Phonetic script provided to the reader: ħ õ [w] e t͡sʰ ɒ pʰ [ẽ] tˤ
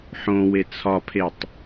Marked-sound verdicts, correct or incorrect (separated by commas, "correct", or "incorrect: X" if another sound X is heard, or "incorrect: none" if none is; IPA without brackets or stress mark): correct, incorrect: e